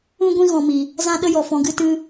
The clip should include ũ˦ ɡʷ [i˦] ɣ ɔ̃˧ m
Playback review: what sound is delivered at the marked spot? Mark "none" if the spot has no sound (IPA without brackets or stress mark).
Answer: ĩ˦